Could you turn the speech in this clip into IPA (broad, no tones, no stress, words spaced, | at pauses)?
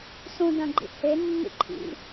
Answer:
sũdɐ̃ɡ͡ǃḭ henːḭ ǃʰḭ